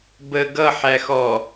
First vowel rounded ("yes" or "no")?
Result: no